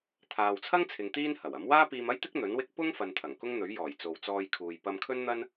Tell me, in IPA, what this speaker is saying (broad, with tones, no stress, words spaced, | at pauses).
t̪ʰaː˨wt͡sʰɐ˥ŋt͡sʰɪ˨ŋ t̪iː˥nhɐ˨˩wɐ˨˥m waː˥piː˧m ɐ˥jt̪ɪ˥k̚ n̪ɵ˨˥nwɪ˥k̚ pʊ˥ŋfɐ˨n t̪ʰɐ˨˩ŋkʊ˥ŋ n̪ɵ˨˥ɥjɔː˨˩jt͡so˨wt͡sɔː˧j kʰuː˨j pɐ˧mkʰɵ˥nn̪ɐ˥n